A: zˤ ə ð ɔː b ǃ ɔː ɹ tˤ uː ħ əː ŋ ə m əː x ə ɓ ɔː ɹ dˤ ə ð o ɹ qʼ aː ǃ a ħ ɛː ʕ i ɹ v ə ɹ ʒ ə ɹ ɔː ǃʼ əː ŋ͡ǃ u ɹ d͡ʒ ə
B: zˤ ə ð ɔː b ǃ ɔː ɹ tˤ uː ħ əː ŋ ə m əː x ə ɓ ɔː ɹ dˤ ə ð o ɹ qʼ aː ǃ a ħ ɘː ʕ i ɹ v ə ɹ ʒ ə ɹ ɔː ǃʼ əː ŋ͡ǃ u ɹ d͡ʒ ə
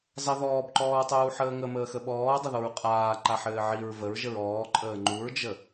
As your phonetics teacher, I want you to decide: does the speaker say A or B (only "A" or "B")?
B